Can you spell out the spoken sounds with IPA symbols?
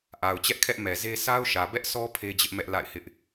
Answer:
ʔ a˨ ʊ̯ t͡ɕ ɛ˦ ʔ kʰ ɛ˦ ʔ m ɛ˨ z e˦ s a˦ ʊ̯ ʃ ä˨ b ɛ˦ ʔ s ɔ˦ pʰ e˦ d͡ʑ ɪ˦ ʔ m ɛ˦ ʔ l a̰˦˨ ɪ̯ h ɪ˦ ʔ

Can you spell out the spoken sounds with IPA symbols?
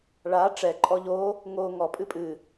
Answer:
ɭ a ʈ͡ʂ ɛ ǃʼ ɔ ʎ o | ŋ o ŋ ɔ pʼ ɨ pʼ ɨ

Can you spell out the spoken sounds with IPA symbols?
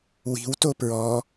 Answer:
w i̤ w t o p ɹ ɔ

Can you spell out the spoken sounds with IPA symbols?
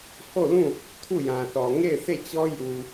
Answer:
h o˦˨ l ũ˦˨ | tʰ u˦˨ j ã˨ θ ɔ˨ ŋ e˦˨ ɪ̯ sʰ e˦˨ t͡ɕ ɔ˦ j u˨

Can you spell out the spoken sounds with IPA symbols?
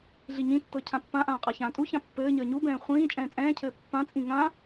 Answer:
ɮ i ɲ ĩ tː ɤ cʰ ã pː ã ʔ ãː qʼ a ç ãː tʼ u ç ã pː ɘː ɲ əː ɲ u b ɛ̃ː χʷ ĩː t͡ʃʼ ɛ̃ː t͡sʼ ɛ̃ː cʰ ɘː pː ã t͡sʼ ĩ ŋ ã

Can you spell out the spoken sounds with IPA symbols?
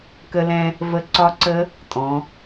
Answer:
k ə˧ l ɛ̃˧ | v ə˦˥ ǀ ɒ˦˥ ǀ ə˦˥ | tʼ ɔ̃˩˧

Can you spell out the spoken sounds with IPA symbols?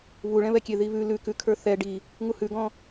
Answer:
β u ɭ ɛ̃ β ɛ kʲ e ð i β ʉ l ʉ k ʉ kʰ ə˞ θ ɛ ɖ i | ŋ u h ʉ ɡ ɔ̃

